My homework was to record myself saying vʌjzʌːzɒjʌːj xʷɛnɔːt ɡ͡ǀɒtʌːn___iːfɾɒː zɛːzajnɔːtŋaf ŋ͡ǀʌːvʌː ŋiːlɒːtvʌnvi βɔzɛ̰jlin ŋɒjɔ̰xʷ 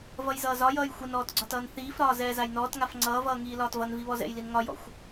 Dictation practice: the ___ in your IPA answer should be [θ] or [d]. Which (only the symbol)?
θ